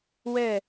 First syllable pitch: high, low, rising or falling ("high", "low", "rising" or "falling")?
falling